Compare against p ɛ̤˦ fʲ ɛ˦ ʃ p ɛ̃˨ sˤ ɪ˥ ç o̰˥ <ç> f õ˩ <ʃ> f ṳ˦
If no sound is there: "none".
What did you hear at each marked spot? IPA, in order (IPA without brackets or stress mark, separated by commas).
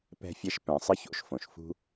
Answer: ʃ, ʃ